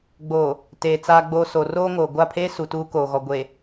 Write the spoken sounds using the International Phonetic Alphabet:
ɡ͡b o˨ | t eː˨ t͡s aː˨ ɡ͡b oː˨ s o˨ r oː˦ ŋ oː˨ ɡʷ a˦˨ pʰ eː˦ s u˨ t uː˦ k oː˨ ɣ ɔ˨ ɡʷ e˨

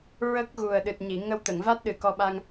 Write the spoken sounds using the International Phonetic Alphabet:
ɹ ə˦˥ k̚ ɣ u˨˩ ə̯ ɗ ɨ˨˩ t̚ ɲ i˨˩˨ ŋ ə˧ w t̪ ə˨˩˨ ŋ v a˦˥ t̚ ɗ ɨ˨˩ k ɔ˧ ɓ a˧ ŋ

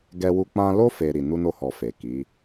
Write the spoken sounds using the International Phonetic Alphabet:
ɡ ɛ˧ w u˧ k͡p ã˧ l o˦ f e˧ ɾ i˨ n u˧ n o˧ h ɔ˨ f e˨ k i˨˦

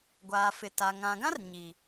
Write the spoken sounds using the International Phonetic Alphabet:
ɡʷ aː˨ f ɪ˨ t a˨ ŋ ã˨ ɡ ã˦ r ɲ i˨

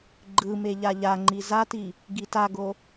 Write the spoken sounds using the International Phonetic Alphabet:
ɡ͡ǃ ɯ m e ʎ a ʎ a ŋ͡ǃ i z a t i | ɡ i t a ɡ o

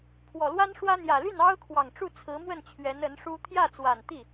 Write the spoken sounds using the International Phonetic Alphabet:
pʰ w ɔ˨˩ l w a˥ n ʂ w ä˥ n̪ j ä˨˩ l y˥˩ n ɑ˥ ʊ̯ kʰ w ɑ˨˩ ŋ ʈ͡ʂ u˥˩ t͡sʰ ɹ̩˧˥ m w ə˥˩ n t͡ɕʰ ɥ ɛ˧˥ n ə˧˥ n ʂ u˥ t̪ʰ j ä˥˩ t͡s w a˨˩ n t̪ i˥˩

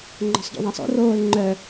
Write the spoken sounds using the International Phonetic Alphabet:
ŋ͡ǃ ɔ̤ sˤ ɟ ṵ ðˤ ã sˤ o̰ r oː l ŋ͡ǃ œ

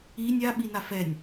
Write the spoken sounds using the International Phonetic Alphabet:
i nʲ a ɓ i n a f ɛ nʲ

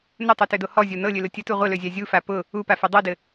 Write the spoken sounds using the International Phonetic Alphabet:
n ɘ tˤ u t ø d o h ɔ zʲ o n ɤ lʲ ø l ʊ tʲ ə t u ʁʷ ɘ l ø zʲ a zʲ u f a p ʊ | u p a f ɛ dˤ ɤ d ɘ

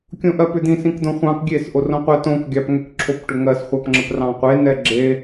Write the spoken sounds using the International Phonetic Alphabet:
kʲ õ ʔ ɜ p ʏ d̪ ĩ s ĩ k d̪ õ χʷ ɑ̃ k ɡʲ e s ʔ o r õ qʷ ɜ t õ k ɡʲ ɑ p ŋ ʏ k ǁʰ o p ʈ ʏ ŋ ɜ s χʷ ɑ p ŋ͡ǁ ə p r ɑ̃ qʷ e n ɛ ɡ͡ǁ e

